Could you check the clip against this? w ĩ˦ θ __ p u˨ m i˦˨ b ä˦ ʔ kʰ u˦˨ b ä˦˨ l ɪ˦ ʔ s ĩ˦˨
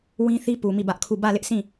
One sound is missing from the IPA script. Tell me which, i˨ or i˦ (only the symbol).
i˦